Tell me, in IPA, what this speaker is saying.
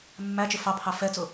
mː æ t͡ʃ ɪ f ɑ pʰ ɑ f ɛ t͡s ʊ

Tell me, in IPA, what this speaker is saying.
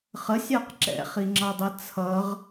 χ ə sʲ ɑ q ǁ ɛ̰ χ i ŋ͡ǁ ɑ dˤ ɛ t͡sʰ ʌ ʁ

